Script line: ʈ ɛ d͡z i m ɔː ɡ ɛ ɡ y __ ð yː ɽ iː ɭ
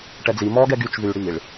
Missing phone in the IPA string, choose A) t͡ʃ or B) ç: A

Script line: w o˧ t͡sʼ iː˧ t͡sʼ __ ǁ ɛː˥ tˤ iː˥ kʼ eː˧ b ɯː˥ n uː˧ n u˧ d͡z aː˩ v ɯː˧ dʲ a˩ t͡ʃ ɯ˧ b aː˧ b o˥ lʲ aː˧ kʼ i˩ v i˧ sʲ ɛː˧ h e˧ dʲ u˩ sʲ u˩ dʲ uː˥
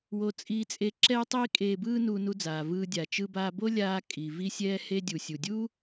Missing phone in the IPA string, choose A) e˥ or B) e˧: B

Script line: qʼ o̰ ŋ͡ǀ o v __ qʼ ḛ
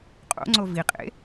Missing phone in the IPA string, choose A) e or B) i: B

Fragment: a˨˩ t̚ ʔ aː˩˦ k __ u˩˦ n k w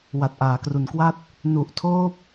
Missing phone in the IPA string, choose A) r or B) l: A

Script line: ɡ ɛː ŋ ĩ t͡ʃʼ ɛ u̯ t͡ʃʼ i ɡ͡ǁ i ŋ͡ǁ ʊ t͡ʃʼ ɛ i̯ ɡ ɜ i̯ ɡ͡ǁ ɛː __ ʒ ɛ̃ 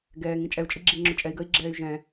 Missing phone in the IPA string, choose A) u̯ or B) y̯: B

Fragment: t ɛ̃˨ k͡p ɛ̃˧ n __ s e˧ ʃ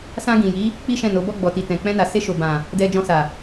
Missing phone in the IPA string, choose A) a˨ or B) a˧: A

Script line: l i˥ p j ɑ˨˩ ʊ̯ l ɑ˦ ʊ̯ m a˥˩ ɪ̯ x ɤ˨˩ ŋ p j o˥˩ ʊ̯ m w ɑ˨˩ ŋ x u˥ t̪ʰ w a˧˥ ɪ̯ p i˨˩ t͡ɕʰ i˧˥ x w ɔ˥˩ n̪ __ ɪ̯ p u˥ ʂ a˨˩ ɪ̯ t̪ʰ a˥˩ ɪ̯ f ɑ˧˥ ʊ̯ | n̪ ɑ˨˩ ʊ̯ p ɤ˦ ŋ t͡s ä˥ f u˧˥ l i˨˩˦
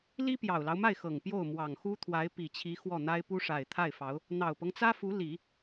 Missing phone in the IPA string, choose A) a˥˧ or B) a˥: B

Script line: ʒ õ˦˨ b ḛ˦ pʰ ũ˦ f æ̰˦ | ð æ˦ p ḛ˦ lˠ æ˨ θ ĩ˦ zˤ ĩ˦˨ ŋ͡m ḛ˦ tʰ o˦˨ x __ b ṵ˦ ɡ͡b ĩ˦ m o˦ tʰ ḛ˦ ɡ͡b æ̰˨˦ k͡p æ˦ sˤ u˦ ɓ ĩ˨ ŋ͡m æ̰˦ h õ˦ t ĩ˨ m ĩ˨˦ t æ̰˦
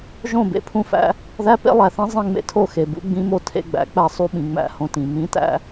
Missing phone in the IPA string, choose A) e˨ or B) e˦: A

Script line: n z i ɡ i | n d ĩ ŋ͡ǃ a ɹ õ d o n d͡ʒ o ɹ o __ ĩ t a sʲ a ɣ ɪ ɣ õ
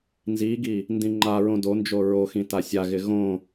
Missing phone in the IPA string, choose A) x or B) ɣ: A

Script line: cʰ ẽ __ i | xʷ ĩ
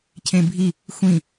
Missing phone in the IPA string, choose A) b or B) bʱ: B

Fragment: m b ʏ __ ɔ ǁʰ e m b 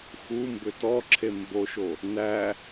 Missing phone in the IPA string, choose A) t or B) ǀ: A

